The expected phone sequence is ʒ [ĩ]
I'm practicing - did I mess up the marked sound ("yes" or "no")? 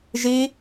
yes